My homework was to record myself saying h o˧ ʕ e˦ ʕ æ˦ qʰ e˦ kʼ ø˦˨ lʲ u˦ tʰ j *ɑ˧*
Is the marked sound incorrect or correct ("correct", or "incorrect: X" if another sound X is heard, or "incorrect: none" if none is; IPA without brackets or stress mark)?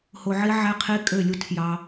correct